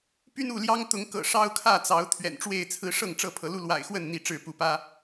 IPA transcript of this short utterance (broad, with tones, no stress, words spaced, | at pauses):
py˦nu˥˨ljɑ˦ŋt̪ʊ˨˦ŋ kɤ̰˨˩ʂɑ˦ʊ̯kʰä˥˨t͡sɑ˨˦ʊ̯ t̪ʰɥɛ̰˨˩nʈ͡ʂwe˥˨ɪ̯t͡sʰɹ̩˦ ʂɤ˥˨ŋʈ͡ʂɤ˥˨ pʰɤ˨˦lu˦ lwa̰˨˩ɪ̯xwə˥˨n n̪i˥˨ ʈ͡ʂɻ̩˥˨ pu˨˦pä˦